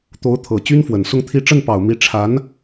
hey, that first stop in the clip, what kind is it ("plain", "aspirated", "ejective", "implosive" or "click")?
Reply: plain